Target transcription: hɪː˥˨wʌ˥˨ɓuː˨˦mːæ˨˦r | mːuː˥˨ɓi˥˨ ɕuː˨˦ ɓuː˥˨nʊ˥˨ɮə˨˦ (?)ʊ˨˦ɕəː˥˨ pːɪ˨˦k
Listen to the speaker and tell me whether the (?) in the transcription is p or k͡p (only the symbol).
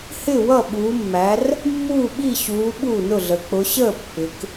k͡p